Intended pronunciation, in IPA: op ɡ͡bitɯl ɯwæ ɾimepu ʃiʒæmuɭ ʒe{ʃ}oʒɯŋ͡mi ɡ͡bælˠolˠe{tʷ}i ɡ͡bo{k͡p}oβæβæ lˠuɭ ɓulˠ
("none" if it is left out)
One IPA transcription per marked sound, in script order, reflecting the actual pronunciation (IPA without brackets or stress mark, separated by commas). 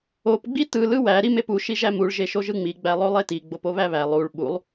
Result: ʃ, t, p